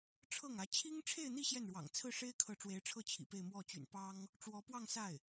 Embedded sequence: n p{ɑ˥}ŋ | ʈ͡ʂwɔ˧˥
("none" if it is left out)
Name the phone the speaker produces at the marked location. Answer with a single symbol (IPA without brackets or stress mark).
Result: ɑ˥